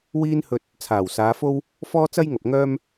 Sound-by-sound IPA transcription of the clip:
wiː˥nhɵ˧t̚ | t͡sʰaː˨˩wsaː˨˧fo˥w | fɔː˥t͡sɐ˥jŋɐ˨p̚ ŋœː˥m

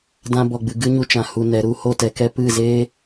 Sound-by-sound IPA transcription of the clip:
dã˧bɔ˨ɡ͡bɨ˨ ɡɨ˦ɲu˧ t͡ʃã˨ hu˨nɛ˨ ɾu˦˨ho˦˨ tɛ˧kɛ˦ pɨ˦˨zeː˦

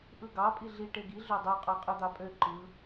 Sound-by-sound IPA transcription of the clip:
ʔɯɡɑ pʼiɮi ʈeɡi ɮødˤo qʼɑqʼɯd̪ɑpʼø ǃɯ

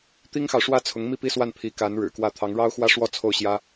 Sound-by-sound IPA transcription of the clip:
t̪i˥ŋxɑ˨ʊ̯ʂwä˥ t͡sʰʊ˧˥ŋmi˥˩pi˥swa˥˩n pʰi˧˥ka˧˥n ɻɻ̩˨˩kwä˥˩ t̪ʰɑ˧˥ŋɻɑ˥ʊ̯xwä˥ʂwɔ˥˧ t͡sʰo˥˩ʊ̯ɕjä˥

